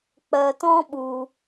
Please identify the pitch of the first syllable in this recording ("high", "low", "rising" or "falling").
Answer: low